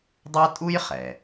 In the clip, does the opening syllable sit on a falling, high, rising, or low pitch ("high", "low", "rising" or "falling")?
high